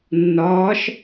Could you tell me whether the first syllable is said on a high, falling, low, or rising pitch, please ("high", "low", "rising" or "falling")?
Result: rising